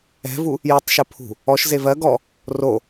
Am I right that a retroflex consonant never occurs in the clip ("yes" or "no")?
yes